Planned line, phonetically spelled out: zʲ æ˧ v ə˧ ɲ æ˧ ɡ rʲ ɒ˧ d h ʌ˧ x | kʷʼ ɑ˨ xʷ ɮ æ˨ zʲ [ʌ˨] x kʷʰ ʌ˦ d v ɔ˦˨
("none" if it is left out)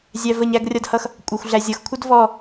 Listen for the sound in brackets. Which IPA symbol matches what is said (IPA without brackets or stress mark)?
ʌ˨